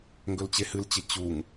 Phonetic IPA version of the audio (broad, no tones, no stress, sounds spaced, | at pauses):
ŋ ɡ ɵ l t͡ɕ e h ɨ l t͡ɕ ɪ t͡ɕ u ŋ